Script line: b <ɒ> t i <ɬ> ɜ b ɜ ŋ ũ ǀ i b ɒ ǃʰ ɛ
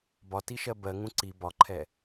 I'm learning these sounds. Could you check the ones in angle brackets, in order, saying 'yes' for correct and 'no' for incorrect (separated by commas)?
yes, no